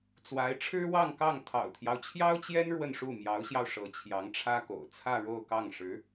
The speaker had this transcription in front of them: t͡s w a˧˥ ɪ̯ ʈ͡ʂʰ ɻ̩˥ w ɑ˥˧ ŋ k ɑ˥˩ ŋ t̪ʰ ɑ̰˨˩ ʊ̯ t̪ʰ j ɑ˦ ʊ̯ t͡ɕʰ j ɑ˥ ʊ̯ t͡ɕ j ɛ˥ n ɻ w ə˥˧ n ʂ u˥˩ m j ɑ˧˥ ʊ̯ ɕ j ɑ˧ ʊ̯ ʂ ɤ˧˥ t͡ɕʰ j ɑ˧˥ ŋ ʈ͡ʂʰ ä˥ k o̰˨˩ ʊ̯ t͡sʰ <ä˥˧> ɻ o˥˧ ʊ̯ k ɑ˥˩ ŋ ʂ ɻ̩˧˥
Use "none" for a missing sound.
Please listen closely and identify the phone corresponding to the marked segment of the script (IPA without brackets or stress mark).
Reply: ä˥˧